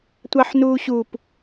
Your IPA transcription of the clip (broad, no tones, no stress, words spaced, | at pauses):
tʷɑħnuːɕup